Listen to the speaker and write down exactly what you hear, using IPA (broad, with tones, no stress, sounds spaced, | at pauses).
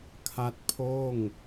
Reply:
kʰ a˦˥ t̚ pʰ oː˥˩ ŋ